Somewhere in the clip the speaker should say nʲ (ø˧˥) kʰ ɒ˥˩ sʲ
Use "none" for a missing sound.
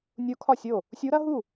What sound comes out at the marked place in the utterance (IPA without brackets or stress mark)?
u˧˥